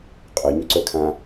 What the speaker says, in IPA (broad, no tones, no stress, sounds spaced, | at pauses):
qʼ œ ɲ ʏ ǀ œ kʰ ã